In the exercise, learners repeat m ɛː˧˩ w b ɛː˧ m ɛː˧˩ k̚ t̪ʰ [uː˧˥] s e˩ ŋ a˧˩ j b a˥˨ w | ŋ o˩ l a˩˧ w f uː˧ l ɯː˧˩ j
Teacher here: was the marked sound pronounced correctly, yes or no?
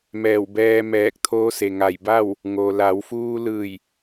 no